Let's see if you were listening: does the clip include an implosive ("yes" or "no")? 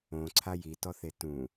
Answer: no